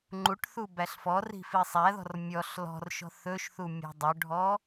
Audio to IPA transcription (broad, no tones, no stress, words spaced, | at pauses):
ŋ͡ǃuʈθu bæɬfɔri̤ fisˤæðɔ̤r mʲɔɬ lɔ̤rʃɔ̤ θɵʃθu mʲɔ̤dˤɵɖʱɔ